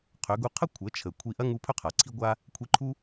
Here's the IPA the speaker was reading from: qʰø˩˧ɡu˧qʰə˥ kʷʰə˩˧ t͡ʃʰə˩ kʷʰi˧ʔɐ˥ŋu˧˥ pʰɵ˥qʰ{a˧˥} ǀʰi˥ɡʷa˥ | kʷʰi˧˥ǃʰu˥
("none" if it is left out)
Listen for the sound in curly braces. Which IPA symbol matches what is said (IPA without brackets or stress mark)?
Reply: a˩